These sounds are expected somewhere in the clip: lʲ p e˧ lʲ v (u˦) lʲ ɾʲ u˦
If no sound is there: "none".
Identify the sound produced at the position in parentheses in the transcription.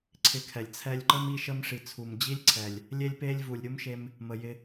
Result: u˨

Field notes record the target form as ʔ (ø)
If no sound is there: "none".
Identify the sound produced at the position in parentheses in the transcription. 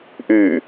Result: y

